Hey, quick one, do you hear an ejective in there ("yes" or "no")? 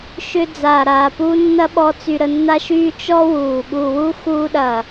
no